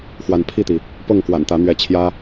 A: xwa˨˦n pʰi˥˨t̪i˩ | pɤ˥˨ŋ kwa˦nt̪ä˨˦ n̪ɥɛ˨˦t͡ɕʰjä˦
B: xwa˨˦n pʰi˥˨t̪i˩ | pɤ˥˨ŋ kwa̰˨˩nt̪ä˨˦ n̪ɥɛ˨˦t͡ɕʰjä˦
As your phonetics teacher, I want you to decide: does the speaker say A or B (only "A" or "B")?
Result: B